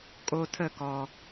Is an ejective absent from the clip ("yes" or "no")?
no